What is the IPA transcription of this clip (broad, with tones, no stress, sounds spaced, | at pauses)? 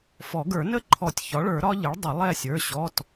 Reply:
f ɔ˨˩˦ ɡ ə˞˨˩˦ n ə˦˥ ǃʰ ɔ˨˩˦ tʲ ç ɒ˩˥ ɭ ə˞˨˩˦ ɾ ɒ˦˥ ʎ ɪ˩˥ ɭ dˤ ə˨˩˦ lˠ ɛ˦˨ sʲ ə˞˩˧˩ ɕ ɔ˩˧˩ t